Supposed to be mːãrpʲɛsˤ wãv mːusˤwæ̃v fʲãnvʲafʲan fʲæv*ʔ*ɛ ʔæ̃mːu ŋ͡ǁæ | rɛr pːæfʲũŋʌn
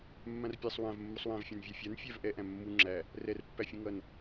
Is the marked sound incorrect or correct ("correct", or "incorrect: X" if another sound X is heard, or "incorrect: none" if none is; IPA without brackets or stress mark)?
correct